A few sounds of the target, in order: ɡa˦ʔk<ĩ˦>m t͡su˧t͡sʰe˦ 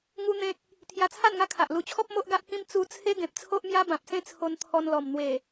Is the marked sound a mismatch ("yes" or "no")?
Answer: no